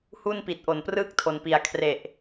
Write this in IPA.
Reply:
h u˥˩ n p i˨˩ t̚ ʔ o˨˩ n p r ɯː˥˩ k̚ tʰ o˩˦ n p i˩˦ a̯ kʰ r e˨˩ ʔ

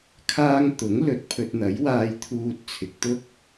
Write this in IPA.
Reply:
kʰ aː˥ ŋ t̪ ʊ˨˥ ŋ l ɵ˨˥ t̚ pʰ ɵ˧ t̚ n̪ ɐ˨˥ j w aː˧ j t̪ʰ uː˨ t̚ t͡sʰ ɪ˨ k̚ t̪ ʊ˥ k̚

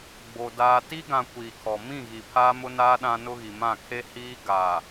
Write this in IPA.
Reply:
ɡ͡b o˨ d aː˨ t i˦ ɡ ã˨ kʷ iː˨ kʰ ɔ˨ m ĩ˦˨ ɣ i˨ pʰ aː˦ m ʊ˦ n aː˦ ɗ ã˦ n ʊ˦ ɣ i˨ m ã˦˨ kʰ e˦ h iː˦ ɡ aː˨

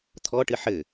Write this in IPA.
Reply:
t̪ʰ ɔ ʈ ɨ ħ ɘ

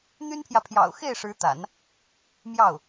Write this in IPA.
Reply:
n̪ y˥ n pʰ j ä˨ pʰ j ɑ̰˨˩ ʊ̯ x e˥˩ ɪ̯ ʂ ɻ̩˧˥ t̪ a̰˨˩˦ n | m j ɑ˥˩ ʊ̯

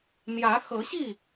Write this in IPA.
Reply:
n̪ j ä˨˦ x ɤ˨˦ ɕ i˥˨

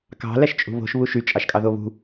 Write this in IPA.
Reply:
k ɑ̤ l æ ʃ t͡ʃʼ ṳ β o̤ ʃ β u ʃ y t͡ʃʼ ɑ ʃ kʼ ɑ ð o β ṳ

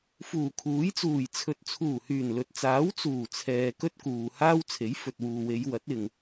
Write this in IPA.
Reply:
f uː˨˩ kʰ uː˨˥ j t͡s uː˨˩ j t͡sʰ ɵ˨ t̚ t͡sʰ uː˨˩ h yː˨˩ n l ɵ˨ t̚ t͡s aː˨˥ w t͡s uː˨˩ t͡sʰ ɛː˨ k ɵ˥ t̚ k uː˨ h aː˥ w t͡sʰ e˨˥ j f ɵ˨ t̚ w uː˨ w e˨˧ j w ɐ˨˥ t̚ ɪ˨ ŋ

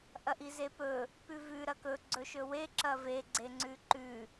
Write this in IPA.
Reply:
ʔ ɐ ʔ i z e p ɵ | p ʉ v ʉ ɾ ɐ k ɵ ɡ͡ǀ ɵ ʃ ɵ w e ǁ ɐ v e ɡ͡ǀ e ŋ͡ǀ ʉ ǃ ʉ

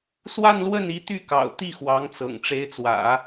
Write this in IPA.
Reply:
s w a˥˧ n l w ə˥˩ n i˧˥ t̪ y˥˩ k ɑ̰˨˩ ʊ̯ t̪ i˥˩ x w ɑ˧˥ ŋ t͡s ɤ̰˨˩ ŋ ʈ͡ʂ e˧˥ ɪ̯ t͡s w ä̰˨˩˦

